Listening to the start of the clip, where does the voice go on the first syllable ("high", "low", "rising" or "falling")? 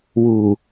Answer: low